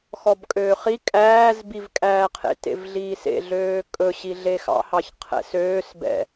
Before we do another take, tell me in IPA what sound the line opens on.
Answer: x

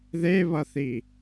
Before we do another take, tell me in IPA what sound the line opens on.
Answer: ð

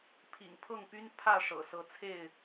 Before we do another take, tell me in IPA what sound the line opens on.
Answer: pʰ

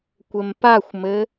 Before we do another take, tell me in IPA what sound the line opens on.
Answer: kʷ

